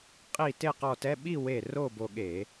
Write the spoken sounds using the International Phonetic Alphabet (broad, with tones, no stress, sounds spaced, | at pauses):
qʼ i˧˩ t e˥˧ q ɔ˧ t ɛ˧˥˧ ɓ i˥˧ w e˧˩ r o˥˧ b o˧ ɠ e˧˩˧